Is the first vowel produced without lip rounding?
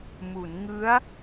no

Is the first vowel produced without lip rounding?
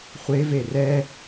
yes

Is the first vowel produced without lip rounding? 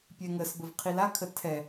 yes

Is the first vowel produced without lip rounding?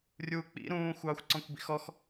no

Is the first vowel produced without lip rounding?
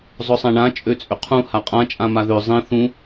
no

